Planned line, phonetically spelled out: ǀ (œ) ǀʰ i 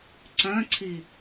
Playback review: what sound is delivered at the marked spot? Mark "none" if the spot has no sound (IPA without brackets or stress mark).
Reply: œ̃